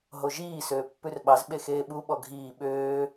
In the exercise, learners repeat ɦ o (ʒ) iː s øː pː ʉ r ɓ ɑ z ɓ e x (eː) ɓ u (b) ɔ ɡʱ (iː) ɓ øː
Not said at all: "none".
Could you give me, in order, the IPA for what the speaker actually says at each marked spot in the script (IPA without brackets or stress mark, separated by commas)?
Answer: ʒ, eː, ɓ, iː